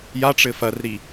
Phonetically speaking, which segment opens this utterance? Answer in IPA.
j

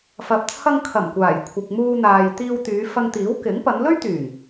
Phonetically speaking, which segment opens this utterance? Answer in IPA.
f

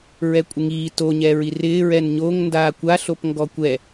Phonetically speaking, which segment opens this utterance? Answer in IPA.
ɹ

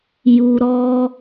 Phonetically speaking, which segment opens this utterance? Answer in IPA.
j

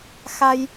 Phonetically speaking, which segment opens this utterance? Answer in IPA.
x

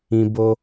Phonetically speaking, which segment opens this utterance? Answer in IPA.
ĩ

